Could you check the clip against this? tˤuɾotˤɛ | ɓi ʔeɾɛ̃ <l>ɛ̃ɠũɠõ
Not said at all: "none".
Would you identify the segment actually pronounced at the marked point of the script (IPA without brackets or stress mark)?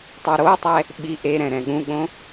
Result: ɾ